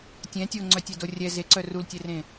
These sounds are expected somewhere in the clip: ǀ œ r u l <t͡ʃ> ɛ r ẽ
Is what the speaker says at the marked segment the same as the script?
no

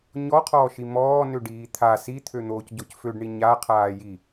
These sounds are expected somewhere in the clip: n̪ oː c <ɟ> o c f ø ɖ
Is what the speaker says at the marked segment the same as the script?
yes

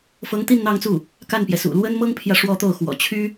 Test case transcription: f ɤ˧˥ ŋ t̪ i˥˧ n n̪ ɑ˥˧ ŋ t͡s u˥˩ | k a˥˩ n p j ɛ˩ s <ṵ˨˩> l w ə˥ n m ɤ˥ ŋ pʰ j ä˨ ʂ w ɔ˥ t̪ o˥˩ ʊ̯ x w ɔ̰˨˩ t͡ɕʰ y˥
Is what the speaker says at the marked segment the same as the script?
yes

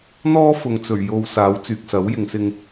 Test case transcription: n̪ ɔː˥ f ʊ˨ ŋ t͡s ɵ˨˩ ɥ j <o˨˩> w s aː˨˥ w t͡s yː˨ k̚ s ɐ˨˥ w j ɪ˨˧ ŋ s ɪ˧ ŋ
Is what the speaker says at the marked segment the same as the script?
no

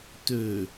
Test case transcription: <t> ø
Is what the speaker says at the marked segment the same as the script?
yes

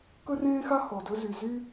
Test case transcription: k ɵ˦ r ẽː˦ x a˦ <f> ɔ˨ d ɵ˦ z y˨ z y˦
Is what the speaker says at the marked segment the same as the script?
no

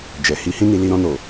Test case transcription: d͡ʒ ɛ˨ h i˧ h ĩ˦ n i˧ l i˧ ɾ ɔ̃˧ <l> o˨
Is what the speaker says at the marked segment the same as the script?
no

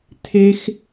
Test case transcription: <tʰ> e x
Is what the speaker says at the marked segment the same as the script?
yes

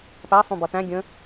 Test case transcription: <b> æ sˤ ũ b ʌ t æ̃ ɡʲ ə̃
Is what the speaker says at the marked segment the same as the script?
no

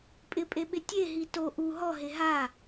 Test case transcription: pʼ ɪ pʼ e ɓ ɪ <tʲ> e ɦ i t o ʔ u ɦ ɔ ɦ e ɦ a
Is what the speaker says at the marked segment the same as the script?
yes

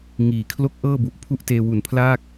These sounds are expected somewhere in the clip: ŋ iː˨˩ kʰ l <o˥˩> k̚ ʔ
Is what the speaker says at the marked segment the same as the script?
yes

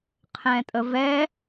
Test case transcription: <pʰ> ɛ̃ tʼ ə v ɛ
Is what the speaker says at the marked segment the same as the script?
no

